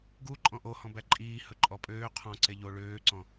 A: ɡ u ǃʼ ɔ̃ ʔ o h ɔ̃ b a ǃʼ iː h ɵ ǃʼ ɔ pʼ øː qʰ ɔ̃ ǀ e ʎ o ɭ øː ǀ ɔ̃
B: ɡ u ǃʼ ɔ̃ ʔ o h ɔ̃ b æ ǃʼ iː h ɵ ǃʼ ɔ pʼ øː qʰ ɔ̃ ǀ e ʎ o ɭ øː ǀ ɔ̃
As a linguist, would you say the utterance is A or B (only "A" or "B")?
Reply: B